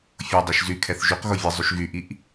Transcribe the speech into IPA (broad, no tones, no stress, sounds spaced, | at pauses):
fʲ o dˤ i ʃ z y kʰ ɛ θ ʒ y q ɣ o vʲ ɘ zˤ y ʃ ɣ y ʔ i ʔ